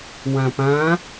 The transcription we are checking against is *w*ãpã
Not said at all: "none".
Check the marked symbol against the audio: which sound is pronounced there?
w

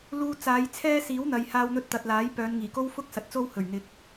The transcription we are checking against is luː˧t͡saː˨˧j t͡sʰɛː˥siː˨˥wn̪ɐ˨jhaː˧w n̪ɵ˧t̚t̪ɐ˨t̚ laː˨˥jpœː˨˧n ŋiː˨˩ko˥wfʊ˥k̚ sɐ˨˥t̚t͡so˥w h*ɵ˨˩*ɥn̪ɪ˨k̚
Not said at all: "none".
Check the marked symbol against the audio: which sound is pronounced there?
ɵ˨˩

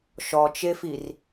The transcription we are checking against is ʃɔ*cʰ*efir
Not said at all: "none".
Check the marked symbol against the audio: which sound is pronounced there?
t͡ʃ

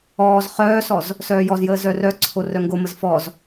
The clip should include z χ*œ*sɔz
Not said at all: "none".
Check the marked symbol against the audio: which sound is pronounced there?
œː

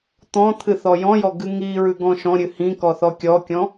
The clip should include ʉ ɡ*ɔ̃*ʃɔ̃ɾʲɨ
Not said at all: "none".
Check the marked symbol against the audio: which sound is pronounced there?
ɔ̃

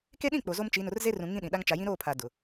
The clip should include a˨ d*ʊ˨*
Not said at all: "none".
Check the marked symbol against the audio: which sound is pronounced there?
ʊ˨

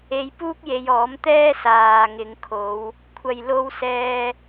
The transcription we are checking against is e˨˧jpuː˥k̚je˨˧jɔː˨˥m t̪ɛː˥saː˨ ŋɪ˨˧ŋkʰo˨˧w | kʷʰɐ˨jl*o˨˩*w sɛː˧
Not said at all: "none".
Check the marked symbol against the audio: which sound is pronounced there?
o˧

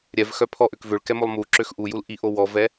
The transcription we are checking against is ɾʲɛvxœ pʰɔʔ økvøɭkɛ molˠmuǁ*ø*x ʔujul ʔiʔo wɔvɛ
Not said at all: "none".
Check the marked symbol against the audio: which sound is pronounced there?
ø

